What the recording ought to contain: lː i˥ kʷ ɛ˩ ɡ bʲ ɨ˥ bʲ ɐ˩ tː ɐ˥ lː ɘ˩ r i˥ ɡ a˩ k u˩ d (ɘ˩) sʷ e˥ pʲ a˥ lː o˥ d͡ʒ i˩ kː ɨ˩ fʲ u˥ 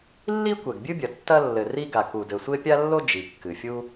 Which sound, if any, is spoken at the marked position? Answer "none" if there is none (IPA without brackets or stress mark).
ɘ˩